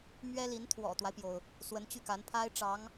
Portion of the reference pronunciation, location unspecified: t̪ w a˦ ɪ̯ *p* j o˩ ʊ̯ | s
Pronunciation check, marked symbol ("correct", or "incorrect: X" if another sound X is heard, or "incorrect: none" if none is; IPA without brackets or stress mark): correct